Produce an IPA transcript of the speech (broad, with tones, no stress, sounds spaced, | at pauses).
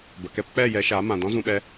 b ə˨ k ɛ˦ p k͡p ɛ˦˨ j ɛ˧ ʃ a˨˦ m ã˨ d ɔ̃˦ z ũ˧ ɓ ɛ˧